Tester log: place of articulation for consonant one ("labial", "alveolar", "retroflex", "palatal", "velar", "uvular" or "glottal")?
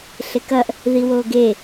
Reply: alveolar